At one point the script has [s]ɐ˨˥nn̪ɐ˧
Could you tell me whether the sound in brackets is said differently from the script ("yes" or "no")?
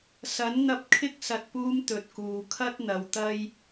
no